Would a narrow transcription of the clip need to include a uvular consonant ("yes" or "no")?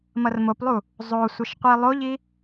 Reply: yes